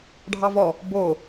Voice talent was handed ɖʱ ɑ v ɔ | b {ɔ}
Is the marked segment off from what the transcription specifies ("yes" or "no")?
yes